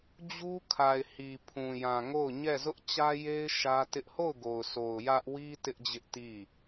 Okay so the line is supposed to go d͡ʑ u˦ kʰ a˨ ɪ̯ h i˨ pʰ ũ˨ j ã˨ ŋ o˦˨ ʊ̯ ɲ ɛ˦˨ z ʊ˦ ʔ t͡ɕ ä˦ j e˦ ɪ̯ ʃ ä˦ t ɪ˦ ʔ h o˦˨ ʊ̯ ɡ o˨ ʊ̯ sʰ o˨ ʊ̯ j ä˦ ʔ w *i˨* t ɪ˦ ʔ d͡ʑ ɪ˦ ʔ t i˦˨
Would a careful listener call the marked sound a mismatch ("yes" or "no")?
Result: yes